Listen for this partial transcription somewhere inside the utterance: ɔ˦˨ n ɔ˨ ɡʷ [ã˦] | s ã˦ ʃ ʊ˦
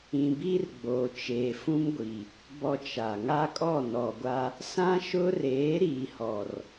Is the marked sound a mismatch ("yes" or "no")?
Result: yes